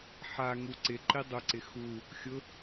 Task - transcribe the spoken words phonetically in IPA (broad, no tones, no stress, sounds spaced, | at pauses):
ħ a ŋ u ǀ ɪ ǃ i dˤ ʊ ǀ ɪ x u | xʲ ʊ